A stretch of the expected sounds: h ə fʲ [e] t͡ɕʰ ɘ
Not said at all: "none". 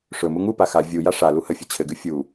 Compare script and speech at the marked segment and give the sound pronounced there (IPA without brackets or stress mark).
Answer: ɘ